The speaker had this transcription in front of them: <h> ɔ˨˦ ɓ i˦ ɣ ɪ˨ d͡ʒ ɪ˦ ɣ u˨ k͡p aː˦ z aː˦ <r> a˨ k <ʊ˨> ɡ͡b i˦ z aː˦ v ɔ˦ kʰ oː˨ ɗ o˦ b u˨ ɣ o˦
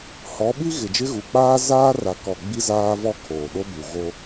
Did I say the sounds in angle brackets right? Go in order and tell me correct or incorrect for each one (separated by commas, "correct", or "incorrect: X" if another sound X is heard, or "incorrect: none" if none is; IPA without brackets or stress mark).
correct, correct, incorrect: ɔ˨